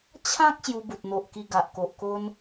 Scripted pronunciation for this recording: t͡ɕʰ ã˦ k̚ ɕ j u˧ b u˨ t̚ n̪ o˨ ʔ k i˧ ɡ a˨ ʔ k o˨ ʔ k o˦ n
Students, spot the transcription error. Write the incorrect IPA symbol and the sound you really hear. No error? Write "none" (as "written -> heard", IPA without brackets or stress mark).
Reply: none